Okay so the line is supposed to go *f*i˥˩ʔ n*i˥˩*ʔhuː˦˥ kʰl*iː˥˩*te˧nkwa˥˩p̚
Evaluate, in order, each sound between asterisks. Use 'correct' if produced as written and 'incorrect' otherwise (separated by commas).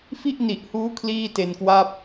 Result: correct, incorrect, correct